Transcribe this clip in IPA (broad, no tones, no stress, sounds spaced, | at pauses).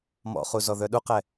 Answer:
m ɔ̰ χ u z ɔ ð œ ɗ u q ɛ